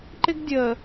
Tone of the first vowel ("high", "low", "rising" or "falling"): high